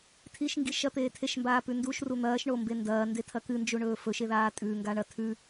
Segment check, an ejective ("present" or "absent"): present